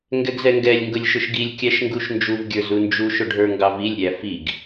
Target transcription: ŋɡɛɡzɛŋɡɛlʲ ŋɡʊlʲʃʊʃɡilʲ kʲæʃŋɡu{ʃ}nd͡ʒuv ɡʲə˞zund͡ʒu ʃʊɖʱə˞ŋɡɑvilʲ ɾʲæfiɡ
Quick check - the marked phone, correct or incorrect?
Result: correct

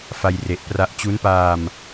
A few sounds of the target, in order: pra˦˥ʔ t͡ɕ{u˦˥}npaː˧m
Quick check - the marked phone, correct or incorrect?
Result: correct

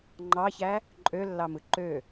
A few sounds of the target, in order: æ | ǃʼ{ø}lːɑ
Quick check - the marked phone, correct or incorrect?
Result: correct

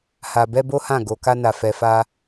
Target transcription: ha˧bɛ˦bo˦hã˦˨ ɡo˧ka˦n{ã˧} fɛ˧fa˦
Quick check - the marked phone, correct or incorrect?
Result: incorrect: a˧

